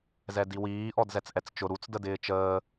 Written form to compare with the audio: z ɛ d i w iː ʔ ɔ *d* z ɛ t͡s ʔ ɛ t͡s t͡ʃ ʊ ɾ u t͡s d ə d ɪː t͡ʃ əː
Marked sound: correct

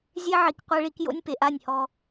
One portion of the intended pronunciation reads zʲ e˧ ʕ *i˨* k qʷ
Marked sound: correct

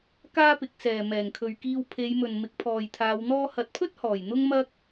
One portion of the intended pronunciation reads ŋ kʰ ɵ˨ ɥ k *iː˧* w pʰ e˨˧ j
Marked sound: correct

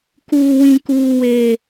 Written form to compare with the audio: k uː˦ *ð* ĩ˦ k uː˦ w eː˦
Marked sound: incorrect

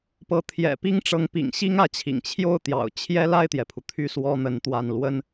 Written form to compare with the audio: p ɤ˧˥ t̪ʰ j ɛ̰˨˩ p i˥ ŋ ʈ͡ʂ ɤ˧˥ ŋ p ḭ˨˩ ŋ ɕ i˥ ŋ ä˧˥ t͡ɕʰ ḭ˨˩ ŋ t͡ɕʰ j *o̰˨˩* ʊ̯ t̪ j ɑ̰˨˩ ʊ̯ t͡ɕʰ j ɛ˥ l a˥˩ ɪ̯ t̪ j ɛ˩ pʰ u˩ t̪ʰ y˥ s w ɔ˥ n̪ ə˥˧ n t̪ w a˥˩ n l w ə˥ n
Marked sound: incorrect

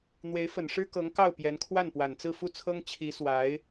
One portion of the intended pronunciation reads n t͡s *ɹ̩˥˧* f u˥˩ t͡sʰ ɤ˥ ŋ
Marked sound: correct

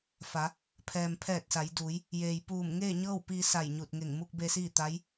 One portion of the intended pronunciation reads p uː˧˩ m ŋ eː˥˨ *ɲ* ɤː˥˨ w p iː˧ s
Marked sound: correct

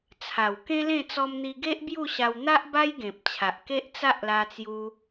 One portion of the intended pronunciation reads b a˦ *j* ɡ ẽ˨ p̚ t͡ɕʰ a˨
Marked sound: correct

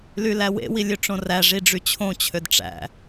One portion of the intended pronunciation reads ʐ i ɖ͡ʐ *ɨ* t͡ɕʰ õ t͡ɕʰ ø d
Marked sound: incorrect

